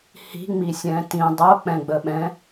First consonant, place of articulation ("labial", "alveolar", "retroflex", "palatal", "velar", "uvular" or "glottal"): glottal